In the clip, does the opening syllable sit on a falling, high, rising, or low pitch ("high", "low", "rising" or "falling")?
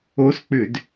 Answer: rising